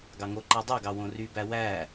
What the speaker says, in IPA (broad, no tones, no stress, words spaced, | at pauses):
ɡɑŋoǃæ dˤoɡɑ wõrybæ wæ